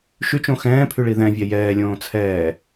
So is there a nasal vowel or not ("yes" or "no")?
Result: yes